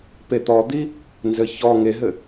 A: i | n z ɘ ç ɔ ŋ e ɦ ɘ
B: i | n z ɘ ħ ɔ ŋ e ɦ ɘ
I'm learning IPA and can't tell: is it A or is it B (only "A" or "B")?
A